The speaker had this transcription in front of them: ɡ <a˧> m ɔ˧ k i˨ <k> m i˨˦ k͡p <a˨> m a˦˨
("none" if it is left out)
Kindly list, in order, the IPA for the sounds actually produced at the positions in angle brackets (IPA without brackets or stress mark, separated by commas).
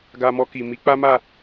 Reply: a˧, none, a˦